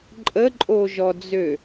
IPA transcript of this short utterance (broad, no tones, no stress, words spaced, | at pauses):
ǃʼəǃʼoʒɔd͡zø